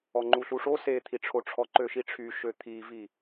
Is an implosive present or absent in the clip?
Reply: absent